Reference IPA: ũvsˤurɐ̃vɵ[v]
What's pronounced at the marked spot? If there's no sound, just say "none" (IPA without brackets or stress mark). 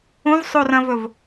v